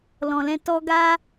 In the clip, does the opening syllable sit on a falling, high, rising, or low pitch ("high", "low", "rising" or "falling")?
low